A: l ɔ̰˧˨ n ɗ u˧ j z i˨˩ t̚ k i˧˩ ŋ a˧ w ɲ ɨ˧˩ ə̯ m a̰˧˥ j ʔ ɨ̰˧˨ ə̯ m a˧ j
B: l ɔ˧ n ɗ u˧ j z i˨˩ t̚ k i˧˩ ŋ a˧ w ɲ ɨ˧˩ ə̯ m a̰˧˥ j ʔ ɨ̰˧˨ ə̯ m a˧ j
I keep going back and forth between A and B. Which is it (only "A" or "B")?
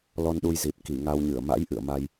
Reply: B